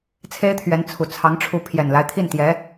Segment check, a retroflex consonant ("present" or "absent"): present